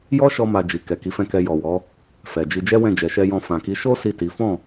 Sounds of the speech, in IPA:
j ɔ˦ ʃ ɔ˧ m a˨ d͡ʒ i˨ k ɛ˨ k i˨˦ f ɛ̃˦˨ k ɛ˧ j ɔ˨ w ɔ˨˦ | f ɛ˨ d͡ʒ i˧ d͡ʒ ɛ˦ w ɛ̃˦˨ d͡ʒ ɛ˨ ʃ ɛ˧ j ɔ̃˧ f ã˨ k i˨˦ ʃ o˦ s i˦˨ t i˨˦ f ɔ̃˦˨

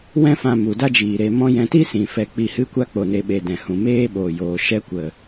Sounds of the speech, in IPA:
w ɛ̃˦ f ã˧ m u˨ d a˦ d͡ʒ iː˨ ɾ e˧ m ɔ̃˦ j ɛ̃˧ t i˦ s ĩ˨ f ɛ˧ k͡p i˧ h ɨ˦ kʷ a˦ k͡p o˨ n e˨ ɓ e˨ d ɛ̃˨ h ũ˨ m eː˦ ɓ o˨ j oː˨ ʃ ɛ˧ kʷ ə˨

